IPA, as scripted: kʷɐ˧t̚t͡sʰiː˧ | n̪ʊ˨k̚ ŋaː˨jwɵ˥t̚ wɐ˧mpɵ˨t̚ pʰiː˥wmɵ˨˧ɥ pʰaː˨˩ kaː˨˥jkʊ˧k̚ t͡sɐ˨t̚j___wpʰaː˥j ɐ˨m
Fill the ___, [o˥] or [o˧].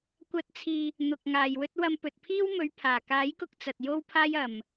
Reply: o˥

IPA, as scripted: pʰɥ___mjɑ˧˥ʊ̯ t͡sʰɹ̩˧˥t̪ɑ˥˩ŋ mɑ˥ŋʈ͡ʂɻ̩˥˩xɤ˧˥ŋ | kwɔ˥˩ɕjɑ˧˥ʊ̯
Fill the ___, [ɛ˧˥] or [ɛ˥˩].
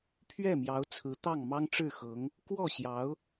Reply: ɛ˥˩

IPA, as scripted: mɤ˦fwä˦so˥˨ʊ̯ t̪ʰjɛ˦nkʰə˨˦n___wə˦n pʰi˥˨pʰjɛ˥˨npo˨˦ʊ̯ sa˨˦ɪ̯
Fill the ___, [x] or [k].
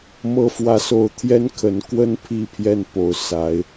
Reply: k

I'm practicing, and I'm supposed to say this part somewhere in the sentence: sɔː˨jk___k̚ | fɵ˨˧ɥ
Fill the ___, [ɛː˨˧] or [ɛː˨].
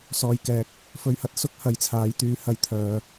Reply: ɛː˨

